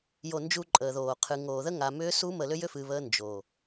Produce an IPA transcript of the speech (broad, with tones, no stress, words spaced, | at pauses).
jo˨ nd͡ʒu˦ǃʼəː˨ðoː˨ qʰɨ˨ŋoː˨ ðə˦ŋa˨mʏː˦su˦ mə˨ lʏ˦jʏ˦fɨː˨ βəː˦ nd͡ʒoː˨